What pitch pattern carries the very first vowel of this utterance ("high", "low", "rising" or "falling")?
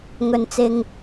low